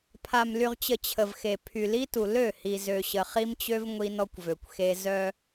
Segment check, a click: absent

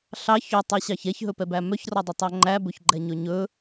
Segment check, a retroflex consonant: absent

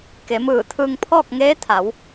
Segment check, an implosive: absent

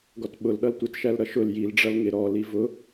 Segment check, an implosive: present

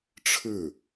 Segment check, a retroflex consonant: present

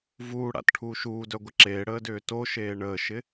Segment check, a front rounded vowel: present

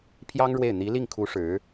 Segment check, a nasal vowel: absent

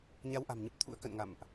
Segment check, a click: absent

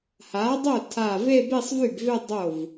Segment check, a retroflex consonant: absent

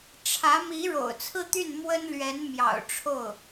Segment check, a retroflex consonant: present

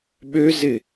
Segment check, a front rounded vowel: present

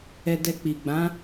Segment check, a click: absent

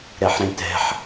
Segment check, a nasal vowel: present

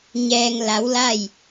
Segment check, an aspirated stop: absent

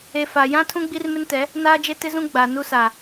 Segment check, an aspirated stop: present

